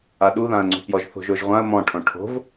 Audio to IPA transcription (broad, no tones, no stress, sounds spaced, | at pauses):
a ɗ u ð ã ə̯ ŋ͡ǀ ṳ p j ɔ ʒ θ o̤ ʒ o ʒ ʁʷ ã ə̯ m ɔ̃ ʈʰ õ ʈʰ o̤ v